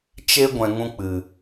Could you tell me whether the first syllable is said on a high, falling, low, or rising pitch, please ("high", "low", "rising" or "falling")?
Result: high